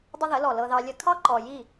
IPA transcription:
dˤ ə˦ ð ə˨˦ l ɔ˨ l ɤ˧ ð ɑ˧ lʲ ə˧ kʰ ɑ˦ ǃ ɔ˨ j i˦˨

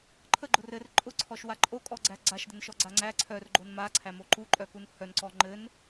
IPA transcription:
ǃʰ ə ɡ͡ǃ ʊ r ɘ r ǃʼ ʊ ǀʰ ɔ ʃ w a ǃʼ o kʼ ɔ ɡ͡ǀ æ ɡ͡ǀ a ʃ d ɘ n ʃ ɔ ɡ͡ǀ a ŋ͡ǀ æ ǀʰ œ r ɡ͡ǃ o n m a ǀʰ æ m o ǃ u ǃʼ œ k u n h œ n ǀ ɔ ŋ͡ǃ ɘ n

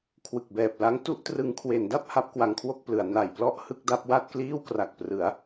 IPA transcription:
kʰ w ɯ˨˩ k̚ b ɛː˨˩ p̚ l a˦˥ ŋ t u˥˩ ʔ t r ɯ˦˥ ŋ kʰ w e˩˦ n d a˥˩ p̚ h a˦˥ p̚ k w a˦˥ ŋ kʰ w o˥˩ k̚ p l ɯ˩˦ a̯ n a˨˩ j p l ɔ˥˩ ʔ h ɯ˦˥ k̚ d a˦˥ p̚ w a˥˩ t̚ k l iː˥˩ w k r a˨˩ k̚ p r ɯ˩˦ a̯

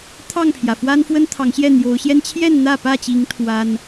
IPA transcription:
t̪ʰ ɑ˥˨ ŋ pʰ j ä˩ f w a˦ n f w ə˦ n t̪ʰ ɑ˨˦ ŋ ɕ j ɛ˥˨ n̪ j o˨˦ ʊ̯ ɕ j ɛ˦ n t͡ɕʰ j ɛ˥˨ n n̪ ä˥˨ p ä˥˨ t͡ɕ i˨˦ ŋ t̪ʰ w a˦ n

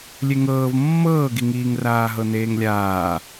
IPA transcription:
lʲ e ŋ ɤː v mː ɤː ɡ i ŋ iː ŋ r aː ɦ ɤ n eː ŋ lʲ aː

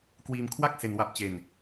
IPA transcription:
k w iː˧ m kʰ w a˥˩ k̚ s e˧ n w a˦˥ p̚ t͡ɕ e˧ n

